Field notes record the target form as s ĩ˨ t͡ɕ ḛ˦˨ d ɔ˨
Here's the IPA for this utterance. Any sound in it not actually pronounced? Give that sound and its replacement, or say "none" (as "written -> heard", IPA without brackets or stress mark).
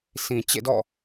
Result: ɔ˨ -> ɔ̰˦˨